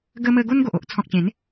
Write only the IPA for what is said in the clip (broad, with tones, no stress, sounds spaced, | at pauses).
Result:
ɡ ə˧ m ə˧ ɡ o˦ n ɡ o˨ ʔ o˦ ʔ t͡sʰ ɔ̃˨ k̚ t͡ɕ ẽ˨˦ n